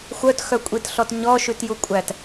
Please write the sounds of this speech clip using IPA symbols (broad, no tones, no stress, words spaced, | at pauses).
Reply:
xʷœtxœkʷʼitɬɔt ɲɔʃʉtjukʷʼæt